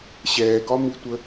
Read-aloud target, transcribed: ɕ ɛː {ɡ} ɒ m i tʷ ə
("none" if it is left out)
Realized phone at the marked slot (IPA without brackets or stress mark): ɡ